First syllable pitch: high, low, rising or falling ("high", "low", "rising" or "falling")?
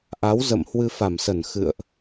rising